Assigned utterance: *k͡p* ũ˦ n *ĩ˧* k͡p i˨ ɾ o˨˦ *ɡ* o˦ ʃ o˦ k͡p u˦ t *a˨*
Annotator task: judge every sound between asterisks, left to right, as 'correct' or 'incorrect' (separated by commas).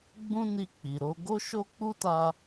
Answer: incorrect, incorrect, correct, incorrect